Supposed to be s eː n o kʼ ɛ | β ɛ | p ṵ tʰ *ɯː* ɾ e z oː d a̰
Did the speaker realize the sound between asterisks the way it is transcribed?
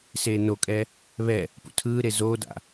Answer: yes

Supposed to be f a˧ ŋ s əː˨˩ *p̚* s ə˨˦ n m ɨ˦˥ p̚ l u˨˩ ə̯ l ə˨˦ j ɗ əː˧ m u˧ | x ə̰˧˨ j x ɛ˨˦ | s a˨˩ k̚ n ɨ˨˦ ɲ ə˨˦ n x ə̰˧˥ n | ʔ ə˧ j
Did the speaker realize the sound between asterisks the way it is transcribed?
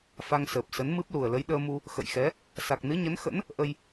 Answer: yes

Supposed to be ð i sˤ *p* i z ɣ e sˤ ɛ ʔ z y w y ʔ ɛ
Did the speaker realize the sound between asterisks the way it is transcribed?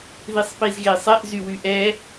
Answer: yes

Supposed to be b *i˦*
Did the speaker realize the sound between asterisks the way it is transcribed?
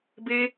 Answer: no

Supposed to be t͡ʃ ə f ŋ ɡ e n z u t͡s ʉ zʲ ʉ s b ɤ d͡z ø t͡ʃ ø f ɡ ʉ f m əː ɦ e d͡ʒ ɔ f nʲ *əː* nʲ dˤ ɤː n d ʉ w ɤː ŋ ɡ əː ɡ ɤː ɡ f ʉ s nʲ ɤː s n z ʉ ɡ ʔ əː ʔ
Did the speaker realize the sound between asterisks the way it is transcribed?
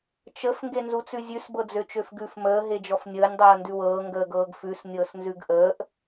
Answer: yes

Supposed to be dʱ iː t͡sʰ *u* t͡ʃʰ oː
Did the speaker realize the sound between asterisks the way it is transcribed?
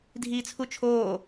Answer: yes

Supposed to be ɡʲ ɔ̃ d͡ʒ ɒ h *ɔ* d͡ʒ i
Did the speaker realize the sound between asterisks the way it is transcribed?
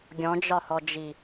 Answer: yes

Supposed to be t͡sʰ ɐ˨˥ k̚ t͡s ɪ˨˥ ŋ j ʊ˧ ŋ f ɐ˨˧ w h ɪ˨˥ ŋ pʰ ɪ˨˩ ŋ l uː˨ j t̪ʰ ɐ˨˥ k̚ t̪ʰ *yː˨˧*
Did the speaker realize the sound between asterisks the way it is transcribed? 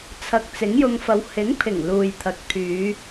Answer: yes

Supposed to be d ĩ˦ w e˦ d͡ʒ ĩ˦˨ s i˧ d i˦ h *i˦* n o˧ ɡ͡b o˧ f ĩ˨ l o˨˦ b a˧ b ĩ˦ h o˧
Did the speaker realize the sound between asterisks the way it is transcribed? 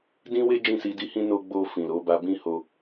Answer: no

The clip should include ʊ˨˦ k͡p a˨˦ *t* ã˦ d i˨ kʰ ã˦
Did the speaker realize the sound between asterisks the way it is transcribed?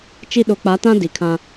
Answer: yes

